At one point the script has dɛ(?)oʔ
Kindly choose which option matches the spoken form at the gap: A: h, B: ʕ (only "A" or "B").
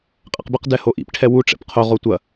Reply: A